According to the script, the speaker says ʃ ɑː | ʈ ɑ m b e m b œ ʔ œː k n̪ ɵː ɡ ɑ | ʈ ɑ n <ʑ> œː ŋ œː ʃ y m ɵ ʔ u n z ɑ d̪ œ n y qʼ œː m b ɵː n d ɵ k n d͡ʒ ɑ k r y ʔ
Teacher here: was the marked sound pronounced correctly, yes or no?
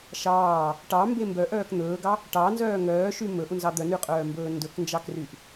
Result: no